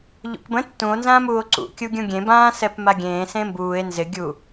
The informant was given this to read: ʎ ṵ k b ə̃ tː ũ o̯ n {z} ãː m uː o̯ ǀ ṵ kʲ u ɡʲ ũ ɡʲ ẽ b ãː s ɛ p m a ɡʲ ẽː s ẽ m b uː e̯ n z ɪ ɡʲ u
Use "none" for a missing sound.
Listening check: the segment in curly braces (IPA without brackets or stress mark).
z